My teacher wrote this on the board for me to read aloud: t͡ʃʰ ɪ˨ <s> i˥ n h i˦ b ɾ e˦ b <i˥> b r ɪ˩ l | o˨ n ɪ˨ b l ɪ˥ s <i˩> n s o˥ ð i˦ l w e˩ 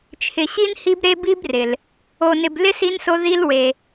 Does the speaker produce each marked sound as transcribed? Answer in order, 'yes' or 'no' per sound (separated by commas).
no, yes, no